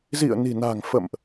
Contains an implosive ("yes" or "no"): no